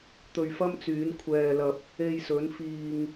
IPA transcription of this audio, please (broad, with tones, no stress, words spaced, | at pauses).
t̪ɵ˧ɥfɐ˥mt͡syː˨˥n kʷʰɛː˧lɐ˧p̚ | e˧jsɵ˨˥n fiː˧ŋ